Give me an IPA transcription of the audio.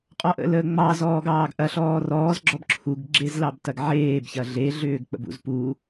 qʼ ɔ ʔ ə̰ l əː ŋ͡m ɑ z ɔː ɡ ɑː ɡ ʔ ɐ ɬ ɔː r ɔː z ɡ͡ǁ ɔ b ǁʰ u ɡ ɡ͡ǁ e z l ɑ b t ɐ ɡ ʕ eː b ç ɐ ɮ e ɮ ʏː ɡ k͡p ə̰ b ṵ z p u

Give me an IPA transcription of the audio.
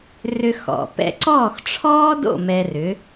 r ʏ˧ x ɔ̰˩ p ɛ̰˧ ǀ ɔː˥˩ x ʈ͡ʂʰ ɔː˥ d o̰˥˩ m ɛ˧ r ʏ˩˥

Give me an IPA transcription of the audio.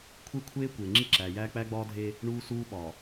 kʷʰ e˦ kʷʰ eː˦ kʷ eː˨ ŋ͡ǁ i˦ ǁ æː˨ j æː˦ k͡p æ˦ ɡ͡b ɒː˦ dʱ e˦ | ɳ uː˦ s uː˦ ɓ ɒ˨

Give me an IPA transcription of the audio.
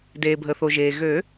d eː˩ bʱ ə˩ θ o˩ ʒ eː˩ ɣ ø˨˩˦

